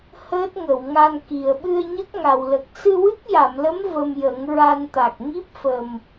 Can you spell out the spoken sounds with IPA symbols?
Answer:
həː˦˥t̚ ŋə˨˩˨wŋa˧nki˨˩ə̯ ɓɨ˧ə̯ɲə˦˥k̚ŋa˨˩wlə˨˩k̚ sɨ˧wɨ˦˥k̚ja˨˩˨mlə˧˥m və˧mjə˨˩˦ŋɹa˧nt̪a˨˩k̚ ŋi˦˥p̚fə˨˩m

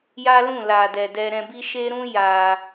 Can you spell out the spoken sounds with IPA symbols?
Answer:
ja˦lũ˦˨la˨dɛ˨ dɛ˧ɾɛ̃˧bi˦ ʃe˦ɾũ˦ ja˧

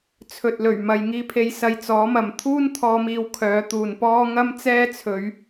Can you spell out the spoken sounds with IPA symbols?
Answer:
t͡sʰɵ˨t̚lɵ˨˩ɥ mɐ˨jŋiː˧pʰe˨˧jsɐ˨j t͡sɔː˨˥mɐ˨m t̪ʰuː˥nt̪ʰɔː˨˧miː˨w kʰœː˨˧t̪uː˨npɔː˥ ŋɐ˥mt͡sɛː˥t͡sʰɵ˨˧ɥ

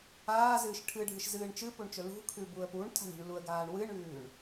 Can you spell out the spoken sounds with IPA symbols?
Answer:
aːzɨːʃ ʈʰɨɖʱɨʃzɨːɳ t͡ʃɨpuɳt͡ʃɵ lṳkʰʉbuə̯ puɳtʰa̤ɳ ṳɳluə̯ɡaːɳ wɨɳʉːɳ

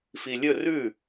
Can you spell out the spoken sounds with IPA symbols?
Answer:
filʲɵ rʉ

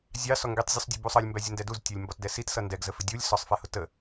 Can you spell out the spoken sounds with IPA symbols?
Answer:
zʲɑ sɔŋɡitˤ zʲusˤdʲubusˤʌlʲ mbæzʲəndɛduz tʲʌlʲmbɒtdɛsit sʌndɛɡ zəfɪdʲulʲ sɒsˤ fɛhʊtə

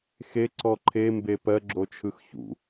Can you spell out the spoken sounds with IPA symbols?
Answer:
xeǀɔ ǃʰembe pɜɡ͡ǁot͡ʃʰɯx çṵ

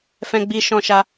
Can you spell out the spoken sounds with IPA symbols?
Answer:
fɛ̃˧ɡ͡bi˧ʃɔ̃˧ʃa˧

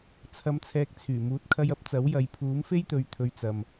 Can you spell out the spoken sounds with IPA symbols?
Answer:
t͡sʰɐ˧mt͡sʰɛː˧k̚t͡sʰyː˨˩ muː˨˥t̚kʰɐ˧jɐ˨˥p̚ t͡sɐ˨˥wjɐ˨˧j pʰuː˨˥mfe˥jt̪ɵ˨ɥ t̪ʰɵ˧ɥt͡sɐ˨m

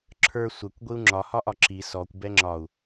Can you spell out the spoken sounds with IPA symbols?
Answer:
ǁʰə˞ sʷɛkʷ ɡʷiu̯ŋ͡ǁɒ hɒʔɒǁi sɔkʷ bɛŋ͡ǁɒu̯

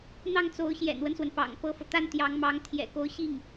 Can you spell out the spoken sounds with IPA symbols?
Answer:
n̪ɑ˥˩ŋt͡so˧˥ʊ̯ ɕjɛ̰˨˩nwə˦nswə˩n pɑ̰˨˩ŋpɤ˥fɤ˨ t̪a˥nt̪jɑ˧˥ŋmɑ˧˥ŋ t̪ʰjɛ̰˨˩ko˧˥ʊ̯ɕi˥˩ŋ

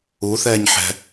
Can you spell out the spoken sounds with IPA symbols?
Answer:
u θɛːɲħɛ̤

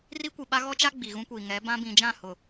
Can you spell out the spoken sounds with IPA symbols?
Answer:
ri˦kʷi˨ɓa˦ ɣɔ˦t͡ʃa˦ ɡ͡bi˨ɣũ˦kʷiː˨ ŋɛ˨˦bã˦ bĩ˨d͡ʒã˦˨hʊ˨

